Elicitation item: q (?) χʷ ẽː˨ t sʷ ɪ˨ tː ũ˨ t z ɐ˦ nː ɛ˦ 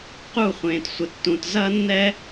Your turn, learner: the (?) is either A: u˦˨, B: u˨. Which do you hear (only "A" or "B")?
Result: A